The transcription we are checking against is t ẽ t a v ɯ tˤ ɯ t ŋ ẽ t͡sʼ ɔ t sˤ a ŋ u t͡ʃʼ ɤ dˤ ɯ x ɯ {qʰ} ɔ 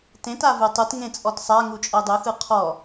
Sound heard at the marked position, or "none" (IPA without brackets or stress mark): qʰ